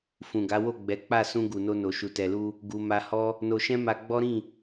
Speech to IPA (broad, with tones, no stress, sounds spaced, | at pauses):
f ũ˨ ɡ a˨˦ w o˦˨ ɡ͡b ɛ˨˦ k͡p a˦˨ s ũ˧ ɡ u˨ n o˧ n o˨ ʃ u˨ t ɛ˨ l u˧ | ɡ u˨ m a˧ h ɔ˦ | n o˧ ʃ ɛ̃˦ m a˧ ɡ͡b ɔ˦ ɾ ĩ˦˨